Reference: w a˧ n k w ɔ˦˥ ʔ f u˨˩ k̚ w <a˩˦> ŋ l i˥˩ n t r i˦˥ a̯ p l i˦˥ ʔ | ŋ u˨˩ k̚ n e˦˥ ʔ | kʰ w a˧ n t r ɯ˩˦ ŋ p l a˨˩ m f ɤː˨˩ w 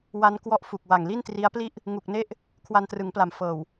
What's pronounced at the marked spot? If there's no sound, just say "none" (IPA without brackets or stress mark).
a˨˩